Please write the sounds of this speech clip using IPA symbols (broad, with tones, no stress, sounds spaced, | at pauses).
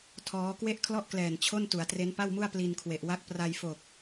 tʰ ɔː˦˥ k w e˥˩ ʔ kʰ l ɔ˥˩ ʔ k l ɛː˨˩ n t͡ɕʰ o˥˩ n t u˩˦ a̯ t r e˦˥ n p a˥˩ w m u˥˩ a̯ p l i˧ n kʰ w e˨˩ ʔ w a˥˩ k̚ p r a˧ j f o˨˩ k̚